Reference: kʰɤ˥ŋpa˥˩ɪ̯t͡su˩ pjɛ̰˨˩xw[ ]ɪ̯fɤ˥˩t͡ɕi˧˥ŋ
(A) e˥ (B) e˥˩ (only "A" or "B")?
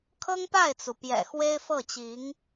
A